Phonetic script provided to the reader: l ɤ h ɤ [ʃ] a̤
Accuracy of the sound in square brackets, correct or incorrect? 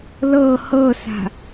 incorrect